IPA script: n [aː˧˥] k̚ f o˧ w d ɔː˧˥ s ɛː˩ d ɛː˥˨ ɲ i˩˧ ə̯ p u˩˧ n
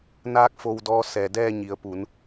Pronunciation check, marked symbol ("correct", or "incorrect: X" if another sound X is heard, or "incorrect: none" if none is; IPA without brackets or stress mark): correct